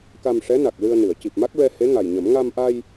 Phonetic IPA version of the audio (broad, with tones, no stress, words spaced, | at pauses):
ka˧mʂɛ˧˥na˨˩k̚ lɨ˧ə̯nɨ˨˩˨ə̯ ci˨˩p̚ma˦˥k̚ɹɛ˧he˧˥ ŋa˨˩jɲə˨˩˦m ŋa˧mʔa˧j